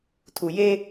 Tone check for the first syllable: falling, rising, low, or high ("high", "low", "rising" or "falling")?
low